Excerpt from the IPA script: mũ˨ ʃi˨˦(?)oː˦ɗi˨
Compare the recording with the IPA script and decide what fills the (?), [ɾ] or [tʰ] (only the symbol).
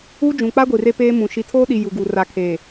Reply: tʰ